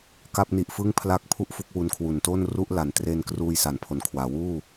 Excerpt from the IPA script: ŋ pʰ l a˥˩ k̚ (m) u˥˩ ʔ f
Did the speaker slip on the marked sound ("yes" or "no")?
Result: yes